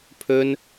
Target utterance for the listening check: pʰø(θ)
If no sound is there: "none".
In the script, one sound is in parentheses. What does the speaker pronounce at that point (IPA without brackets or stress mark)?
n